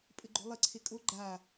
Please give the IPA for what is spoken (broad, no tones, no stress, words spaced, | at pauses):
pʼɘɡ͡ǃo̤lˠɘ ǀʰekʼo ɡ͡ǃa